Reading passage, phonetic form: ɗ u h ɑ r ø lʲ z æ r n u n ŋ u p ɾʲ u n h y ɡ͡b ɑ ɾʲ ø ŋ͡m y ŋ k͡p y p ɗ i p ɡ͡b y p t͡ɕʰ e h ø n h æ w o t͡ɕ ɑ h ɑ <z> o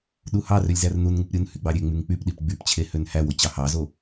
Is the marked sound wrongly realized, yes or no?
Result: no